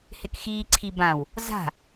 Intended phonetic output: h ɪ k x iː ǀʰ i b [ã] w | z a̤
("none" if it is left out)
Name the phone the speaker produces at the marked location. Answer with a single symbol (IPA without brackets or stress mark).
ã